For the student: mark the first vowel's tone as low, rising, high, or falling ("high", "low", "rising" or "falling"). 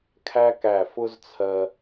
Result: high